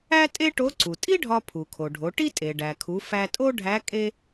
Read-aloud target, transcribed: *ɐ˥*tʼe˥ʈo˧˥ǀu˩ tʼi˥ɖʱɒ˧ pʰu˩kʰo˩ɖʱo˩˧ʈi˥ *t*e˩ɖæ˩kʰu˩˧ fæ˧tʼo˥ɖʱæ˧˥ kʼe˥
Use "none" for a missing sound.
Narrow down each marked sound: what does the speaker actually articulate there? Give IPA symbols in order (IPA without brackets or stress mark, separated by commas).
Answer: æ˥, tʼ